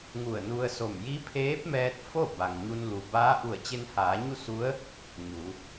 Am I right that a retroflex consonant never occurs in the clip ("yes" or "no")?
yes